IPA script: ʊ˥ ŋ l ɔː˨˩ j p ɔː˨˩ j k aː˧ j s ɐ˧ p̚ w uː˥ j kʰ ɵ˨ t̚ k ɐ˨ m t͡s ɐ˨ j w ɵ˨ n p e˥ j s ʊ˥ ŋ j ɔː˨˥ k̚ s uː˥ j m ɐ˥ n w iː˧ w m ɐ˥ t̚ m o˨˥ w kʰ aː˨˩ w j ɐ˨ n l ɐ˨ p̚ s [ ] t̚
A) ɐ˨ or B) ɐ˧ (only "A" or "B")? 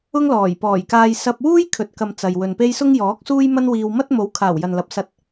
B